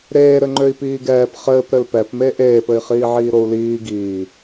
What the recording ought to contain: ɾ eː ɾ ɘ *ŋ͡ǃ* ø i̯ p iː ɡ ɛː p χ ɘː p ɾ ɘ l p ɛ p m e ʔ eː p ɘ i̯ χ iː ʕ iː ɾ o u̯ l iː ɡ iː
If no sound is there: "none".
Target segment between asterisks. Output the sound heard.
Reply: ŋ͡ǃ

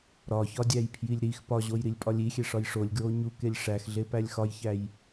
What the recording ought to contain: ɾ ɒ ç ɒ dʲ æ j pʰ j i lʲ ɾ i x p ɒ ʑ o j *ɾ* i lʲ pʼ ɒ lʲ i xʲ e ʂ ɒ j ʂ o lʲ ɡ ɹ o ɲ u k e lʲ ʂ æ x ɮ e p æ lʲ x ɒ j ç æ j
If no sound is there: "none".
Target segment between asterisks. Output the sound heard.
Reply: ɾ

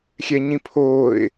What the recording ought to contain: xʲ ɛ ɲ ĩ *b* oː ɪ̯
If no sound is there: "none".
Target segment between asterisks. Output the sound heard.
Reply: pʰ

